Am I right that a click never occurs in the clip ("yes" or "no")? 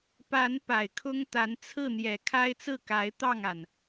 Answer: yes